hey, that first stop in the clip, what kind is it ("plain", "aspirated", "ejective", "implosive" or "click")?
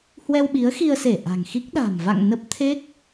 implosive